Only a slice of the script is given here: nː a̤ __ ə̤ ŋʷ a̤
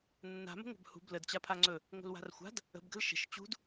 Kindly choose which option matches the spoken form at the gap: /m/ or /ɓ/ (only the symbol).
m